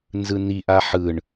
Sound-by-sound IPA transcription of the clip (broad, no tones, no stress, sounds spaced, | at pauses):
n z ɯ n i ʔ a ħ ɯ ɳ